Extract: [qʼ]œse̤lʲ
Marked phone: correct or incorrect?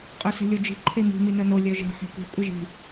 correct